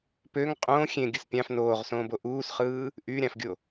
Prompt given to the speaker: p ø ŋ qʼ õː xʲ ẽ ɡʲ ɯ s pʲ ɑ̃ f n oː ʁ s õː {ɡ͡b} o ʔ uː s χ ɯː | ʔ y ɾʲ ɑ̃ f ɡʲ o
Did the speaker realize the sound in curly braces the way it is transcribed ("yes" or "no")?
no